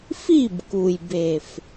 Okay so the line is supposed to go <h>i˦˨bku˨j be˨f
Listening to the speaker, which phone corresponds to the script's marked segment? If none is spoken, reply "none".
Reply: f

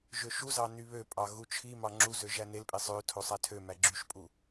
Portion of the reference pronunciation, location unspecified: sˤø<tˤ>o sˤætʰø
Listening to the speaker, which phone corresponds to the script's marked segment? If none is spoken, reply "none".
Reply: tʰ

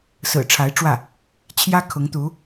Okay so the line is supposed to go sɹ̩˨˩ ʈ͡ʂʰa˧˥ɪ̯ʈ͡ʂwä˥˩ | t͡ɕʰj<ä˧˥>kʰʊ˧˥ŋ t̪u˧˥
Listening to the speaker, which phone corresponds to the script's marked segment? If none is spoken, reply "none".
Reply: ä˥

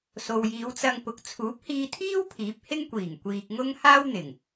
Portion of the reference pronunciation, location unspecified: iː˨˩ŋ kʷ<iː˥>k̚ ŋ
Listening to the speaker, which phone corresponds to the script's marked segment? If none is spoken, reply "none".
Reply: iː˧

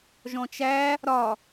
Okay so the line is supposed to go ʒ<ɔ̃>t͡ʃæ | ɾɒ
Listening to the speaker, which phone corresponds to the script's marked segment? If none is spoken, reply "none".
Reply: ɔ̃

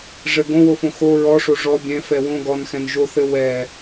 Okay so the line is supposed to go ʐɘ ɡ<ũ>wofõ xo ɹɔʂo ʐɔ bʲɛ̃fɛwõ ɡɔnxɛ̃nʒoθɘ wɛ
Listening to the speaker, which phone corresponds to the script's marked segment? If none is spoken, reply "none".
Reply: õ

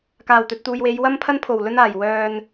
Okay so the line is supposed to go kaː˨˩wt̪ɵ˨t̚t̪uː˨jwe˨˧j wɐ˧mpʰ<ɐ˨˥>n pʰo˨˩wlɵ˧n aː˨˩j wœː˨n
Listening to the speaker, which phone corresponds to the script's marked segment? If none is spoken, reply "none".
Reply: ɐ˧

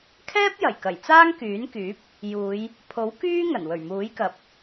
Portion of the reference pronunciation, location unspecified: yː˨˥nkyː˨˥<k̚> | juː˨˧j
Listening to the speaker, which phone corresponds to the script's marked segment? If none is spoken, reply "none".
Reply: p̚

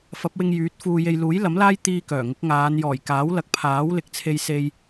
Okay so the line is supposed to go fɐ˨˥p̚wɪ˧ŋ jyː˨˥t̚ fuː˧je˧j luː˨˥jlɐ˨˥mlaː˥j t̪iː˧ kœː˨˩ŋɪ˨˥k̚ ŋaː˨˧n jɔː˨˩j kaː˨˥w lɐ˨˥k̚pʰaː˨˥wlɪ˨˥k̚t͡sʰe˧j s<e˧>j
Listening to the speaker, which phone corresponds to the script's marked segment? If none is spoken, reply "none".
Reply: e˧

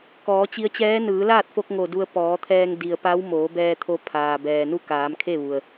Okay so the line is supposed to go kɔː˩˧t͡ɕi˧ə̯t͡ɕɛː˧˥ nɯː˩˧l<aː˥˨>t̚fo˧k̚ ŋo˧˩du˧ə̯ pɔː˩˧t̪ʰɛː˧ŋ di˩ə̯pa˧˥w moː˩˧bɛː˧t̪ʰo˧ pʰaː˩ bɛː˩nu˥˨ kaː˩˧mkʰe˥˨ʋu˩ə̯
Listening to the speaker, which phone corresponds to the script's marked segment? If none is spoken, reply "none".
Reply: aː˥˨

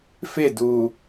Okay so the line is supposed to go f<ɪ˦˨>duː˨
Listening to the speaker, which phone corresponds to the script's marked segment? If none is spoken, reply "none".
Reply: ɪ˦˨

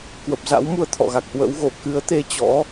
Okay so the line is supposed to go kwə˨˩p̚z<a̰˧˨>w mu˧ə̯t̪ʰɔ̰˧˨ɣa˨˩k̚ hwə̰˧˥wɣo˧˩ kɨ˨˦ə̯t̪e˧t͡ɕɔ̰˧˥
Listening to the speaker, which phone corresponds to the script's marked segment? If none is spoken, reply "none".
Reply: a̰˧˥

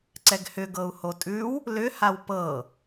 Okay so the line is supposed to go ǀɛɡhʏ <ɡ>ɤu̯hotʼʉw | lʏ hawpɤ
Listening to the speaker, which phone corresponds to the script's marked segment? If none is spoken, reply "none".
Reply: ɡ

